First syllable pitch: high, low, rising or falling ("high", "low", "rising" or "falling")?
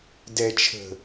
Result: low